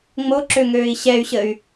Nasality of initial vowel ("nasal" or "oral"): oral